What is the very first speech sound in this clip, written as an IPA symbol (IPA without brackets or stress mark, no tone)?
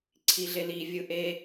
ǀʰ